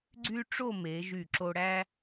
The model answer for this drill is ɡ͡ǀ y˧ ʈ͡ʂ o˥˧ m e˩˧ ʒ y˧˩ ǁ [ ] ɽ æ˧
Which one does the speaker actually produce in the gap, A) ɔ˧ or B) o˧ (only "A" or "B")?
B